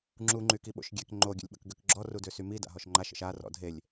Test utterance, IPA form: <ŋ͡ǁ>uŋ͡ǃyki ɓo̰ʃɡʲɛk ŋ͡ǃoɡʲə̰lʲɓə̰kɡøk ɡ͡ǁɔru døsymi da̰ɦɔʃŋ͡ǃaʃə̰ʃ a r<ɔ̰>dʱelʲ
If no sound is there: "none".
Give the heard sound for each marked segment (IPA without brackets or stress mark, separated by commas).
ŋ͡ǁ, ɔ̰